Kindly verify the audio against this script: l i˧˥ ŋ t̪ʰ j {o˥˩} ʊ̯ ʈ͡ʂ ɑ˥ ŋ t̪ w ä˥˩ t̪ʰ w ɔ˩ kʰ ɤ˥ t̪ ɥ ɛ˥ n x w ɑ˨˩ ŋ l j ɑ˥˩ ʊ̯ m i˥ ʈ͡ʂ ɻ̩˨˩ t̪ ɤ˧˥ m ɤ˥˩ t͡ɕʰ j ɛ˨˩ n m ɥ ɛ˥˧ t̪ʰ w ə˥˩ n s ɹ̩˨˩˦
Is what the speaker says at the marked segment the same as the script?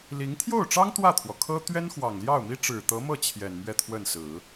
yes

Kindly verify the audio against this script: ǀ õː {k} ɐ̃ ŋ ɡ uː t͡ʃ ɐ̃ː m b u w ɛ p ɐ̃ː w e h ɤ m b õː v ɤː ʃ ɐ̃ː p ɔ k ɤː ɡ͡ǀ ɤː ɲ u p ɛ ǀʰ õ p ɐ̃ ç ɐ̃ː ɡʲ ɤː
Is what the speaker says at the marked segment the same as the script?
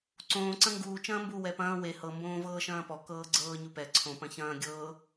no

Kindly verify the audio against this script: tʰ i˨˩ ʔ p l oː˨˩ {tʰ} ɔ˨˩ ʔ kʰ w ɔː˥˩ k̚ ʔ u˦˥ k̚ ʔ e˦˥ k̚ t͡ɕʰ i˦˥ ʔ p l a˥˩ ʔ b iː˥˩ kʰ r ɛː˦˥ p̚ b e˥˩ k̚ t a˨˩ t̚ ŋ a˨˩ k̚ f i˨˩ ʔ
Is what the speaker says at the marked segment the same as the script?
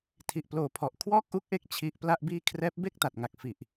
no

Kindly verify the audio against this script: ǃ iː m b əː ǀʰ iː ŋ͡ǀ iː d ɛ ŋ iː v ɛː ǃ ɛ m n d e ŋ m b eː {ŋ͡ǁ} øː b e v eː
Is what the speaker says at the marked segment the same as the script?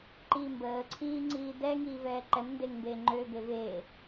no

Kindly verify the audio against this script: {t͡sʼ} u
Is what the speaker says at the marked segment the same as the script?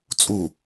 yes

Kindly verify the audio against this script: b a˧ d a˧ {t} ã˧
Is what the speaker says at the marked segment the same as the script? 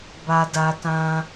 yes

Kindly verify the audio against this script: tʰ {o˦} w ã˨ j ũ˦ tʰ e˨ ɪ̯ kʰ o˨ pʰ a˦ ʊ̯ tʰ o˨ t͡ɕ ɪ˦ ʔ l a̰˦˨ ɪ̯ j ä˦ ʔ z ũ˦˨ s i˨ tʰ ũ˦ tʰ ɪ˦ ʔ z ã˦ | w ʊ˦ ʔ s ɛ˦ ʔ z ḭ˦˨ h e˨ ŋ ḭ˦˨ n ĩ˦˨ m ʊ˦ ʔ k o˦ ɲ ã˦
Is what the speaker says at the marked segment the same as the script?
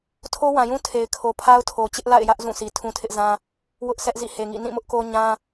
yes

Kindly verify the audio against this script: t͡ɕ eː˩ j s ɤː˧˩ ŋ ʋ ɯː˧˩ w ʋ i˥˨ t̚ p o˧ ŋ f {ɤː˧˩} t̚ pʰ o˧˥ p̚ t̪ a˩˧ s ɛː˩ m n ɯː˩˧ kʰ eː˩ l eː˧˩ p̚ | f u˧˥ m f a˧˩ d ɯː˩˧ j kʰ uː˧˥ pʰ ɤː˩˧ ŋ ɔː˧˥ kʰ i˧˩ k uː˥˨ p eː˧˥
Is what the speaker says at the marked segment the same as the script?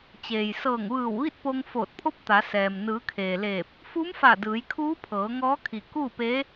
no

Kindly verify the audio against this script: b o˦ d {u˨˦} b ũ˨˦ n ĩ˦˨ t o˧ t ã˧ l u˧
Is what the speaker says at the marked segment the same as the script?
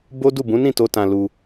no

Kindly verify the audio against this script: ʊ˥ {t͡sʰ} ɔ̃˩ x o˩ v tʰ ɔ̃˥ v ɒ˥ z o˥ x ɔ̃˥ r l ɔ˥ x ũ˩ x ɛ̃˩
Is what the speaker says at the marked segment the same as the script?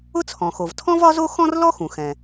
yes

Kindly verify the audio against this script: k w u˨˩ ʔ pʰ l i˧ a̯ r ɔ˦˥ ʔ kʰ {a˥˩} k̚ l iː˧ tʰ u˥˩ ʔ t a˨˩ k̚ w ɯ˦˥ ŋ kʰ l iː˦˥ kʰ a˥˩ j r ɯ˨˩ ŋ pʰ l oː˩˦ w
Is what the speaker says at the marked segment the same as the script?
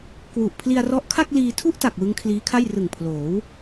yes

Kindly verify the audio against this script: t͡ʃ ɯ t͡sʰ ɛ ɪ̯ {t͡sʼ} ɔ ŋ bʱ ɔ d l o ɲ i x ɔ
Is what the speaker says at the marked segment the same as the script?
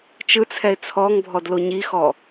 no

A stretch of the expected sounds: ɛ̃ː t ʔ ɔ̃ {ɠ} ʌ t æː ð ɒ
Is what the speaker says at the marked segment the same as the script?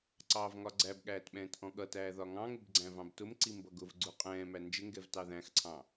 yes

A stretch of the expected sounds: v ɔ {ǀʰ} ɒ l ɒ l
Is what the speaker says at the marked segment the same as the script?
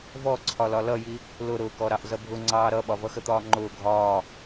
yes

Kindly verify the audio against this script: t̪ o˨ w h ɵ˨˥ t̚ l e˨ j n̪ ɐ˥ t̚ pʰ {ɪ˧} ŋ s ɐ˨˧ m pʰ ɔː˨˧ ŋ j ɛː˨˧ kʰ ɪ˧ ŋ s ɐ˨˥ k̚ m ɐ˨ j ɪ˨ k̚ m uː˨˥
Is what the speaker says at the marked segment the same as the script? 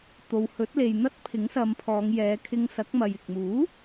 no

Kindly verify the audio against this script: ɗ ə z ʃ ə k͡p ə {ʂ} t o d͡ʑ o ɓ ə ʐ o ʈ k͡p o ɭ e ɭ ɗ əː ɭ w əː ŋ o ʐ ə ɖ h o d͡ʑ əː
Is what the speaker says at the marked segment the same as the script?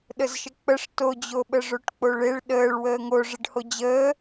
yes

